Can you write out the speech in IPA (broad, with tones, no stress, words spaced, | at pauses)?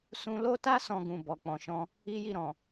sũ˧lo˦ta˦ sɔ̃˧ɡũ˨ bɔ˨k͡pɔ̃˨ʃɔ̃˧ | i˦ji˦˨ɾɔ̃˨